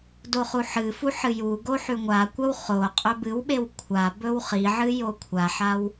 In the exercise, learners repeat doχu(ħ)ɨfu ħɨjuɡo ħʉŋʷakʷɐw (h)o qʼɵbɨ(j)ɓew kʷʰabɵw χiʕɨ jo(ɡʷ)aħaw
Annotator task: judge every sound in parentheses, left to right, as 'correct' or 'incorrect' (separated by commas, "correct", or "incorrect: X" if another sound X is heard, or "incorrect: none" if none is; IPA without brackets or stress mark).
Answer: correct, incorrect: χ, incorrect: w, incorrect: kʷʰ